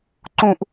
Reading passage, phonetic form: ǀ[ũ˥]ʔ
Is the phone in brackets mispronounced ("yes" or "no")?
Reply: no